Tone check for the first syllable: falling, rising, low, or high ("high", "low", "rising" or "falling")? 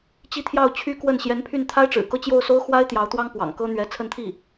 falling